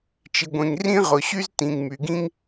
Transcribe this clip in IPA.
t͡ʃi˨ɡʷẽ˨ŋ rĩ˦ʁʊ˨ ɕy˦z tĩ˨ŋ my˨ɡĩ˦ŋ

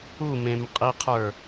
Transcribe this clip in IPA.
umẽmqʼiqʰə˞

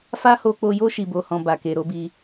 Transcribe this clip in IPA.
fa˦ho˧k͡po˧jo˦ ʃi˧bo˧hɔ̃˧ ba˨ke˨ɾo˨˦bi˧

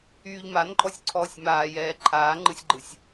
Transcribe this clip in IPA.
yːʎmanǃʼɔsʲǀʰɔːsʲ maːjɛː ǃʰaːŋ͡ǃɯsʲɡ͡ǃɯsʲ

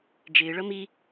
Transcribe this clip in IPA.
d͡ʒɪːɭʌ mi

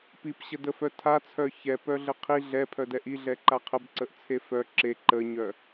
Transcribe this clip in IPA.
pipɕədəfœ tʰat͡sʰœ çɛ pœɮəqʰi ɮɛpʰœdɛ ʔiɮɛ ǃaqʰəb ǀəʔt͡sʰefœ ǁe ǃəɲœ

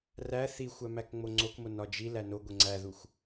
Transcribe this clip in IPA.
ræ θixʷæmæk ŋ͡moŋ͡ǀokmo nɒd͡ʒi lænoɡʷe ŋ͡ǀæðuxʷ

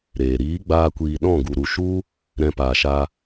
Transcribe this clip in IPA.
ɾeː˨ ɾiː˨˦ɡ͡baː˧kʷiː˨ ɗɔ̃˦˨ɡu˨ɾu˨ ʃu˦ | ɾɛ̃˧paː˨ʃa˧

